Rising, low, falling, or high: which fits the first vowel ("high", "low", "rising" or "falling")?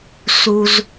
high